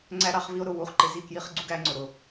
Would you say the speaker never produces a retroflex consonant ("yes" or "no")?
yes